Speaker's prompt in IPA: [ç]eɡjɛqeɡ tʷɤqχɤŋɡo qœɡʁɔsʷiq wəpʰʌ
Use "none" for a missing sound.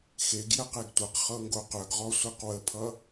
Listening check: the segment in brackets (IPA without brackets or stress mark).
x